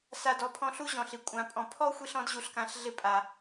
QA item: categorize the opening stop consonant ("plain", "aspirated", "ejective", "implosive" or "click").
plain